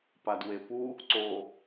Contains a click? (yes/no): yes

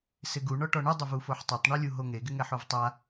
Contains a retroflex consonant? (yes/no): yes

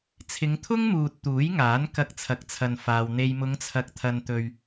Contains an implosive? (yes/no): no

